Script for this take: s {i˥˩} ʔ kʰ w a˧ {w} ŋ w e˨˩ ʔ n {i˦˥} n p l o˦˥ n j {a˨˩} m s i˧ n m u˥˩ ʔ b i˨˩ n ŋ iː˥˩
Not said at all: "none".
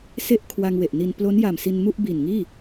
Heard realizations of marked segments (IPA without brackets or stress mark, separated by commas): e˥˩, none, i˧, a˨˩